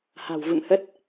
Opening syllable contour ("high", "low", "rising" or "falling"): low